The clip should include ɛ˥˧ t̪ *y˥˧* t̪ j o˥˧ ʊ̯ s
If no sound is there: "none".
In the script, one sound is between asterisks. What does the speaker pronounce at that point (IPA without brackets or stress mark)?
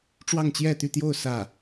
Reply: y˥˧